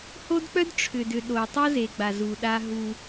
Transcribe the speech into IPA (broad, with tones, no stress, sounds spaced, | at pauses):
h o˦ d k͡p œ˦ d ʈ͡ʂʰ ʏ˨ d ʏ˨ ɗ o˨ tˤ o˦ z e˨ ɡ͡b a˨ z u˨ ɗ a˦ ɦ u˦